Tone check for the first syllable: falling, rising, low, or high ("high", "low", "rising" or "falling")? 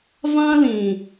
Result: high